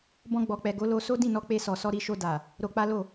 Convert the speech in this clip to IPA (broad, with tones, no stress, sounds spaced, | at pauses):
b ɔ̃˧ ɡ͡b ɔ˨ k͡p ɛ˨ ɡ o˨˦ l o˧ s o˦ d ĩ˦˨ n ɔ˧ k͡p e˧ s ɔ˨ s ɔ˧ ɾ i˧ ʃ o˧ d a˨ | ɾ o˧ k͡p a˦ l o˦˨